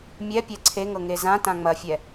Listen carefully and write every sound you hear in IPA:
mʲ ɛ pʲ ɛ ǀʰ e ŋ ɤ ŋ e z ã t ã ŋ͡m ɐ fʲ ɛ

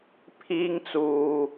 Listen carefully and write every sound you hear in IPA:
pʰ iː˧ ŋ t͡s uː˨

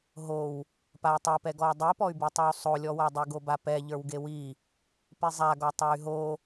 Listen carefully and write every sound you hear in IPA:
ɦ o w | p a i̯ tˤ i p ɛ ɡ ɔ u̯ dˤ i p ɔ y̯ b i tˤ o w sˤ o lʲ ɔ w a dˤ e ɡ o b a p ɛ ʎ ə˞ w ɡ e w i | p i zˤ a ɡ ɔ tˤ ɛ y̯ ɦ o

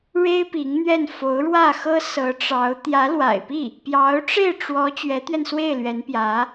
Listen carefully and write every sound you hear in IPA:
ɻ e˥ ɪ̯ p i˧˥ ŋ n̪ ɥ ɛ˥˩ n f o˧˥ ʊ̯ ɻ w ä˥˩ x ɤ˥ s ɤ˧˥ ʈ͡ʂ ɑ˧˥ ʊ̯ t̪ j ä˧˥ l w a̰˨˩ ɪ̯ p i˥˩ | p j ɑ˧˥ ʊ̯ ʈ͡ʂ e˥˩ ɪ̯ ʈ͡ʂ w ɔ˧˥ t͡ɕ ɥ ɛ˧˥ t̪ ɥ ɛ˧ n s w e˥˩ ɪ̯ l ɥ ɛ˧˥ n p j ä˧˥

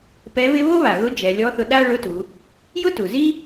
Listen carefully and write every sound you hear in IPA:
p ɛ˧˥ β ɪ˥ β o˥ β a˩ ɣ ʊ˧˥ d͡ʒ ɛ˩˧ lʲ ɔ˧˥ θ ʊ˧ ɗ a˥ ɭ ʊ˧˥ t u˩˧ | j ʊ˥ t u˩ z i˥

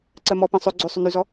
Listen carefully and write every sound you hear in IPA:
ǀ ɜ m ɔ p ɛ̃ sˤ ʏ ɡ͡ǀ ʏ sˤ ʏ n y z ɔ

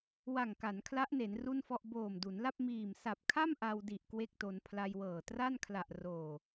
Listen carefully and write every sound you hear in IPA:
w a˨˩ ŋ k a˩˦ n kʰ l a˦˥ ʔ n e˩˦ n r u˥˩ n f ɔ˥˩ ʔ b oː˨˩ m d u˩˦ n l a˥˩ p̚ m iː˨˩ m s a˨˩ p̚ kʰ a˥˩ m ʔ a˧ w d i˨˩ ʔ k w e˥˩ k̚ t o˧ n pʰ l a˧ j w ɤː˨˩ t r a˥˩ n kʰ l a˨˩ ʔ r oː˨˩

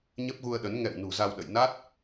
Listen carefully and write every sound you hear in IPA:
ɲ ə˦˥ p̚ ɣ u˧ ə̯ ɗ ə˨˦ n ŋ ɛ̰˧˨ w n ṳ˨˩ z a˧ w ɗ ə̰˧˨ j n a˦˥ t̚

